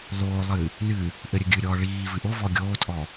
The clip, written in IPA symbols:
l oː lˠ ɨ | n ɨ | ʔ ɘ ɾʲ ɘ ɡʲ ɨ ɾʲ ɔː ɭ iː v ɨ ʔ o v ɔ ɡʲ oː tʼ ɔ

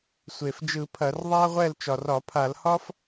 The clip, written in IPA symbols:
sʷ e˨˩ f d͡ʒ ɯ˧˩˧ pʰ ɐ˧˩˧ r ðˤ a˥ ʁʷ ɛ˥˨ l t͡ʃ ɒ˨˩ r ɒ˧˩˧ pʰ a˧˩˧ l h ɒ˥ f

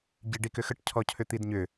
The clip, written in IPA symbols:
ɟ i ɖ i k ʏ x ə ʈ cʰ ɔ cʰ ʏ t̪ i d ɲ ʏ

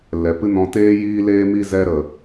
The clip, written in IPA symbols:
l ɛ˨ p ɨ˦ n ɔ̃˧ t eː˦ j iː˦ l eː˦ m i˦ z ɛ˧ ɾ ə˨

